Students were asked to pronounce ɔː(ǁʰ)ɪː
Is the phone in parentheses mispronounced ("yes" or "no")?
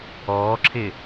no